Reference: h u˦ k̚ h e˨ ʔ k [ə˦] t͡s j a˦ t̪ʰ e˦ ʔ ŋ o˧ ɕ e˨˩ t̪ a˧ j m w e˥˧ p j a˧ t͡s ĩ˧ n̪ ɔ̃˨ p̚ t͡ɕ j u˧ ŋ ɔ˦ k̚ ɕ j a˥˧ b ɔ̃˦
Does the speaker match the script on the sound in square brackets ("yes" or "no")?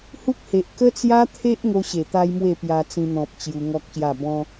yes